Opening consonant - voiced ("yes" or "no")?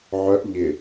yes